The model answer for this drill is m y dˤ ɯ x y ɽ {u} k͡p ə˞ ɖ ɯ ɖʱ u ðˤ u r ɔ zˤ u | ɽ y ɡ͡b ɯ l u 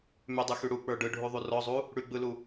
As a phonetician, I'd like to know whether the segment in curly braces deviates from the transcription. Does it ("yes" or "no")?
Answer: no